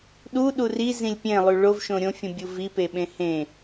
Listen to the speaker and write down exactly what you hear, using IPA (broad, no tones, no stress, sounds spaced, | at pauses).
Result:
ɗ u ɗ u r i z ĩ lʲ pʲ ẽ lˠ y ɭ o v ʃ õ ɾʲ õ fʲ ũ bʲ u v i p e ɓ ẽ h ẽ